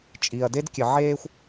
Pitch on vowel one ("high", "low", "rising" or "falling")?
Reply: low